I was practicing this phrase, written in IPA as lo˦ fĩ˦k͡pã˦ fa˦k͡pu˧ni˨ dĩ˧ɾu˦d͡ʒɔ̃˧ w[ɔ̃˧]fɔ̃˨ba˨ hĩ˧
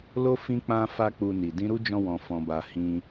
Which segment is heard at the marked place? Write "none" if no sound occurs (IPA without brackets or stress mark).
ɔ̃˨